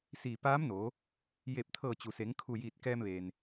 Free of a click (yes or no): yes